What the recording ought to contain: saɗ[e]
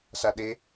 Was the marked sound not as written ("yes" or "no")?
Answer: no